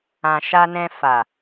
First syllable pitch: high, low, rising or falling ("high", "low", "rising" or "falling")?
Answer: low